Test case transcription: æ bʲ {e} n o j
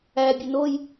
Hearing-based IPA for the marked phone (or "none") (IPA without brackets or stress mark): ø